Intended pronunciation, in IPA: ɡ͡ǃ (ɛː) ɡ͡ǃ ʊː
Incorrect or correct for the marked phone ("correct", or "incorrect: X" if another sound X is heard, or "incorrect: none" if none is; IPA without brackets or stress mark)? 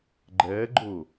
correct